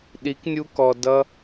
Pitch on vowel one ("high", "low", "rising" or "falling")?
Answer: rising